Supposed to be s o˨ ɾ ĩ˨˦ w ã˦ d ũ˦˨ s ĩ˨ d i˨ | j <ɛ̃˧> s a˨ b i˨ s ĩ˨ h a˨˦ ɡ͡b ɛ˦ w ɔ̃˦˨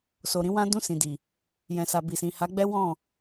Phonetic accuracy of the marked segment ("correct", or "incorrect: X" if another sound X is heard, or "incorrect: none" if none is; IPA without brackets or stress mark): incorrect: ɛ̃˨